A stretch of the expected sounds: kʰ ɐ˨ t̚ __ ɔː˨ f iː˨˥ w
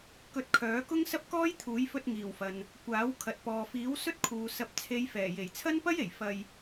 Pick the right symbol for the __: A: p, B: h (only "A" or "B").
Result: A